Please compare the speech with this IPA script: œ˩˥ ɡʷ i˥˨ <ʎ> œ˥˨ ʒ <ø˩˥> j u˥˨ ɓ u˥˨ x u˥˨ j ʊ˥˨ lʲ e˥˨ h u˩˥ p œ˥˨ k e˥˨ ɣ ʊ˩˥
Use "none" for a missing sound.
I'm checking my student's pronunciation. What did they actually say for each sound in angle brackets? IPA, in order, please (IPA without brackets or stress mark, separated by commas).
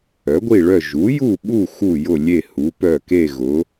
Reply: ɭ, u˩˥